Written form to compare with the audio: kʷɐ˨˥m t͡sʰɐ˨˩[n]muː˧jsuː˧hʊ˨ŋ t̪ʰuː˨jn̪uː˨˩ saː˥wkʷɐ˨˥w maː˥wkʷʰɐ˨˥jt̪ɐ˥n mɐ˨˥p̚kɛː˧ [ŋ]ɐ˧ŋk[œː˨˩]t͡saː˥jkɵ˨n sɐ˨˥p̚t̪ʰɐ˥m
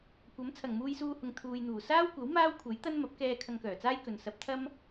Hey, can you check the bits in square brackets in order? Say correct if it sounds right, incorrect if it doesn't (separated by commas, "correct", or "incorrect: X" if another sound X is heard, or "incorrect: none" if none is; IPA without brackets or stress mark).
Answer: incorrect: ŋ, incorrect: kʰ, correct